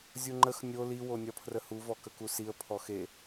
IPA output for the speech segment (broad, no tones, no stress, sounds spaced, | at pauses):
zʲ u ŋ͡ǃ ə x nʲ o l i w o nʲ ɒ pʰ r ə h u v ɔ k ə k u s i ə̯ pʰ ɔ x e